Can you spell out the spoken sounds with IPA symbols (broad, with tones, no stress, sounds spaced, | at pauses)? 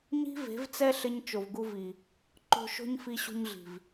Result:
ɲ i̤˦ v e̤˨˦ v t͡s ɛ˦ ɬ ɪ˧ ɲ t͡ʃ o˨ v ɡ u˧ v i˨ | ǃ o̤˧ ʃ o̤˦ ɲ f i˧ ɕ ṳ˧ ɲ ɮ i̤˨ v